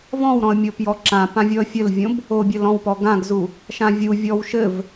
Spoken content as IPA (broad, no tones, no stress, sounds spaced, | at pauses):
v ɔ̃ w ɾ ɔ̃ ə̯ mʲ o p j ɔ ǁ ã p ã vʲ ɔ ə̯ fʲ ɘ l vʲ õ b | o bʲ ɘ l ɔ̃ w p ɔ ɡ ã ɡ z u | ʃ ã vʲ u vʲ ɔ w ʃ ɘ v